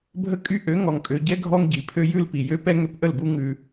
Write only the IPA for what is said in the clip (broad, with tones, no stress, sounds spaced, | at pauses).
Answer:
bʱ ə˦ kʼ y˦ ʔ ø˨˦ ŋ ɔ˨ ŋ kʼ ø˨ ɟ ɛ˦ ɡʱ ɔ˦ ŋ ɟ i˨ pʰ ø˦ j ʉ˦ l p i˨ j ø˦ p ɛ˦ ŋ ø˦ p ʔ ə˦˨ l b u˦ ŋ ʉ˦